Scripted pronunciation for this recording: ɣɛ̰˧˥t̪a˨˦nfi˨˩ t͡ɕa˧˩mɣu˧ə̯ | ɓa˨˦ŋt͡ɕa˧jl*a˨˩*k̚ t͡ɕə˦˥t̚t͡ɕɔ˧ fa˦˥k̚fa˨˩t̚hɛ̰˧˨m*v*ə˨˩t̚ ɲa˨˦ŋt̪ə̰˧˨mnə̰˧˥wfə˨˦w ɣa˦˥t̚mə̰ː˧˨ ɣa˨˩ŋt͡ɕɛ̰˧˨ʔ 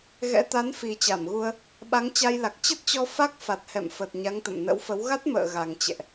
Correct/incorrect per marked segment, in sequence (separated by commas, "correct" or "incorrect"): correct, incorrect